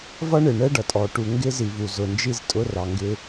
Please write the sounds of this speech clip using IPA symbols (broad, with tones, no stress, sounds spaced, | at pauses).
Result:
v ʌ˦ ɳ ɪ˨ ɳ ɛ˦ ɖ ʌ˨ tʼ ɔ˨ ʈ u˨ ŋ ɡ ɪ˦ z i˨ v u˨ z ʊ˨ n d͡ʒ i˦ z tʼ ʊ˦ r ɑ˨ ŋ ɡ ɪ˦